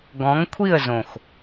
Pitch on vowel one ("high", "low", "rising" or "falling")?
rising